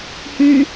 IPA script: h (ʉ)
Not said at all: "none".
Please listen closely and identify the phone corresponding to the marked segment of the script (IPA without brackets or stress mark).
ʉ